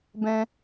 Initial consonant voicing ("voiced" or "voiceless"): voiced